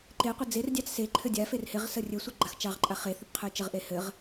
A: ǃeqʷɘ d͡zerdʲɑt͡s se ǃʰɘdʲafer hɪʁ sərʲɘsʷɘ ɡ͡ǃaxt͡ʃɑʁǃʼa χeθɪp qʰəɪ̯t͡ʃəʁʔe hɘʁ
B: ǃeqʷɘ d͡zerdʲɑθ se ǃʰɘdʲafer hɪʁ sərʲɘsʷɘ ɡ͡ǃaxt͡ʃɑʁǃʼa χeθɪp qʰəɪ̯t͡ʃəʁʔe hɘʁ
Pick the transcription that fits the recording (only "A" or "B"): A